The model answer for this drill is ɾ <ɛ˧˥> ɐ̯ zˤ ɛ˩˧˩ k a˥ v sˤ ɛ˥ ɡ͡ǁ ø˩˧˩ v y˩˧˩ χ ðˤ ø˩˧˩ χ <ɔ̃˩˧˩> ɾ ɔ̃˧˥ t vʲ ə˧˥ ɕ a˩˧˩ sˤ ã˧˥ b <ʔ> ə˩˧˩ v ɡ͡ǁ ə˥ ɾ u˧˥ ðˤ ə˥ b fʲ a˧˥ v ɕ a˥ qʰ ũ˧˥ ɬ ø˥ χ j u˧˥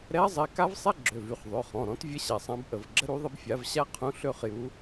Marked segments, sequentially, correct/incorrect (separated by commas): correct, correct, correct